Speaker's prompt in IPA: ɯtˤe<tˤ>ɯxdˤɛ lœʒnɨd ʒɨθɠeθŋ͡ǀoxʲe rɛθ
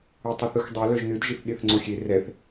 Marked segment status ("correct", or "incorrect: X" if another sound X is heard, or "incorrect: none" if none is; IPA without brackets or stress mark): incorrect: θ